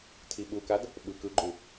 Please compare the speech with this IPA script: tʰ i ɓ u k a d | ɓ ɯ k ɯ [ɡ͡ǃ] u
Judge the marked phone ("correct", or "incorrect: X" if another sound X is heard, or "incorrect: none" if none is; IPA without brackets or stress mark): correct